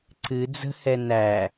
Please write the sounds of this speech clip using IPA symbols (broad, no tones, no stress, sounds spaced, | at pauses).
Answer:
ǀ ɨ d͡z ə̤ h ɛ n æ